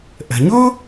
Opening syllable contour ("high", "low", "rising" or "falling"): low